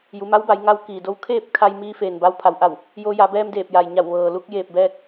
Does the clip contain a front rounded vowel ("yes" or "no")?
no